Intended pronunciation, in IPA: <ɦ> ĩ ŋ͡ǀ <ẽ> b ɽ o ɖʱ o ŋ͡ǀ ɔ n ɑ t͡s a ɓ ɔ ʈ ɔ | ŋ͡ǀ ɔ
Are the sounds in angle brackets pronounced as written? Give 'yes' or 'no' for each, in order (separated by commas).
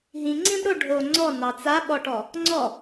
yes, no